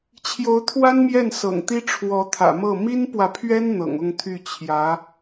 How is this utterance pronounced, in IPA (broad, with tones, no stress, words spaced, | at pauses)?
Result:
t͡ɕʰjo˧˥ʊ̯t̪ʰwa˥nmjɛ˥˩n sɤ̰˨˩ŋt̪i˥ ʈ͡ʂʰwɔ˧˥t̪ʰä̰˨˩mɤ˥˩ mi˥npwä˨pʰɥɛ˥n n̪ɤ̰˨˩ŋʊ˥˧ŋt̪ʰy˥˩ t͡ɕʰjä˧˥